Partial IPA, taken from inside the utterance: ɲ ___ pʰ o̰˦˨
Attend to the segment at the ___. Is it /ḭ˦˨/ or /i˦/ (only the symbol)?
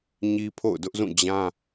i˦